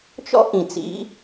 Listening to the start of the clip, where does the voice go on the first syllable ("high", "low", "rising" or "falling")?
high